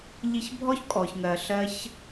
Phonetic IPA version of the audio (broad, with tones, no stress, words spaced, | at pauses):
ʎi˧çbʱɔ˦çkʼɔ˨çŋɜ˨ ɬɜ˦ç